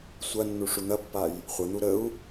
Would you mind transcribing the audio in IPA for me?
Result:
sʷɐnːu ʂun̪ɐpːaj | χʷən̪u ɾəu̯

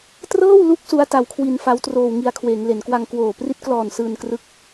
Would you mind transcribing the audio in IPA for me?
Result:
trɤː˥˩wlu˦˥k̚ su˦˥a̯ta˧wkʰwi˧n fa˦˥wtroː˧wŋi˧a̯ kʰweː˩˦ŋle˩˦nkwa˧ŋ kwoː˨˩ pri˦˥t̚klɔː˨˩n sɯː˧nkrɯ˦˥k̚

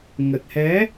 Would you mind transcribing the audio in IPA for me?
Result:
ŋə˨˩t̚hɛ˨˦

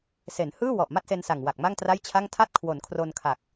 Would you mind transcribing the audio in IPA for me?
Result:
se˩˦nhɯː˥˩wɔ˨˩ʔ ma˥˩t̚se˧nsa˨˩ŋ wa˨˩k̚ma˥˩ŋtra˥˩jt͡ɕʰa˥˩ŋ tʰa˥˩t̚kʰwo˩˦nkʰro˧nkʰa˨˩k̚

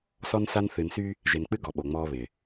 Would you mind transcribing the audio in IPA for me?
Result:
sɔ˦nsa˦n θɨ˨nsy˦ | ʒe˨nk͡pɨ˦ ɡɔ˨ɓo˨ŋ͡mɔː˦ βɪ˨

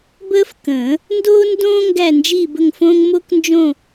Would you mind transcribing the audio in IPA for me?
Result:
bəː˥fkə̃ː˨˩˦ | ndoː˥ndõː˥ ŋɡæ˥˧nd͡ʒiː˥˧bə˥˧ŋfõː˥ŋ mo˥knd͡ʒõ˥˧

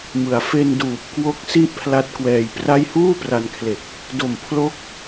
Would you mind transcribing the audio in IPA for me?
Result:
mɯ˩˦a̯ fe˧n duː˨˩p̚kwo˥˩k̚si˥˩ʔ pʰla˦˥t̚kwɛː˧jpra˥˩j huː˥˩pra˧nkʰle˨˩k̚ | do˨˩mpʰlo˦˥k̚

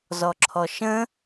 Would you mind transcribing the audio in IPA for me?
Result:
zɔǁʰɔʃə̃

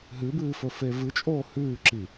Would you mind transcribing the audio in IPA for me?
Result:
ɦɨbɨːfɵfe vɨt͡ʃʼoː hʉːǁi

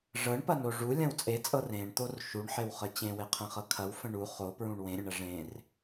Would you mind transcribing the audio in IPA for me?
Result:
ʐɤɳpɐno ʐulʲɐ̃w t͡sʼet͡sʼɤ rẽɳt̪or ʃuɳħewχə t͡ɕẽweqʰẽχɤ kʰɐwfə̃ ɳu χopɹũɳ wẽɾʲə̃ɳɐ ʐẽr

